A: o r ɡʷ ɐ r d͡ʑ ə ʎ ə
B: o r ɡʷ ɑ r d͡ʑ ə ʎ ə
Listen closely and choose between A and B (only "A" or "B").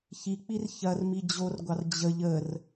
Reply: B